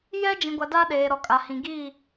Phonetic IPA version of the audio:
jɛ˦d͡ʒĩ˨ɡʷa˨ da˦ɗeː˨ ɾɔ˨kʼa˨hĩ˨ɡiː˦˨

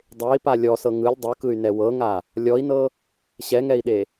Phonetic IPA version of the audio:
dˤei̯pa lʲɔsɤ ŋɯlʲ dˤɯkɯy̯nɛ wɤŋa | lʲɔi̯nɤ | ɕɛŋɛi̯ɗe

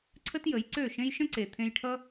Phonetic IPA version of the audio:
ǀʰə˦tjə˨˦jǀø˦˨ʃẽ˦j ʃə̃˦ǀe˨t̪ʰẽ˧jʈʰʌ˦

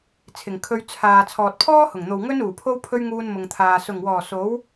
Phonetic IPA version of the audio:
t͡sʰɪ˨˩ŋkʰɵ˧ɥ t͡sʰaː˨ t͡sʰɔː˨t̚pʰɔː˥hʊ˨˩ŋn̪o˨w ŋɵ˥n uː˨˩pʰo˥wpʰɵ˥ɥŋuː˧n mʊ˨ŋt̪ʰaː˨ sʊ˨˩ŋwɔː˨˩ so˨˥w

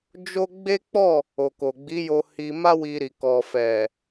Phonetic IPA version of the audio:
d͡ʒo˦ ɡ͡be˦k͡pɔ˦˨ | o˨ko˨ɡ͡bi˨˦jo˧ hi˧ma˦wi˧ɾi˨ kɔ˨fɛ˨

